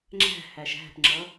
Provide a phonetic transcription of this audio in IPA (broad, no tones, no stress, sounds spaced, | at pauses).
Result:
ŋ͡ǁ æ̤ h æ ʃ æ̤ p ŋ͡ǁ ʌ